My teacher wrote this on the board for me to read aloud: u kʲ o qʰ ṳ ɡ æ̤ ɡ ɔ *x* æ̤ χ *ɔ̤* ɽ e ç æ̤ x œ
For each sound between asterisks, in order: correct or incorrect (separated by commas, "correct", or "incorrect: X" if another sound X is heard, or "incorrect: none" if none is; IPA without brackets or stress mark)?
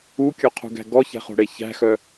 incorrect: ç, incorrect: o̤